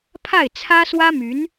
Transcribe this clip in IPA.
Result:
pʰ a˥˩ ɪ̯ t͡sʰ ä˥ s w ä˥ m y˧˥ n

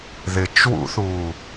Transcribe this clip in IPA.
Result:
ð ɪ t͡ʃ w ṵ θ uː

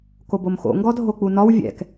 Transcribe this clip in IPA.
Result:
k o b o m x o̰ ŋ ɡ ɔ dʱ o k͡p u n ɒ w vʲ ɛ̰ k

